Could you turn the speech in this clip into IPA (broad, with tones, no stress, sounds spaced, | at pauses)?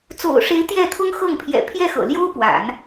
t͡s o̰˨˩ ʊ̯ ʂ e˧˥ ɪ̯ t̪ j ɛ˥˩ t̪ʰ ʊ˥ ŋ x ɤ˥˩ ŋ pʰ j ɛ̰˨˩ pʰ j ɛ˥˩ x ɤ̰˨˩ l j o˥ ʊ̯ p w a̰˨˩˦ n